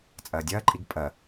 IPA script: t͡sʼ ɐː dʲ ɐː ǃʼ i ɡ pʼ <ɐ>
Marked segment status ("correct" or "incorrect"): correct